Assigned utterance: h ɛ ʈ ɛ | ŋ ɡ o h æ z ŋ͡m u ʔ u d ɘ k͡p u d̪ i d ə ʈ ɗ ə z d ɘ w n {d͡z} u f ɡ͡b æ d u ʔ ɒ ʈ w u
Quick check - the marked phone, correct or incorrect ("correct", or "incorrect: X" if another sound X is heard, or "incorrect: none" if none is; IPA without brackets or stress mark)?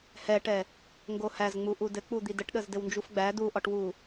incorrect: d͡ʒ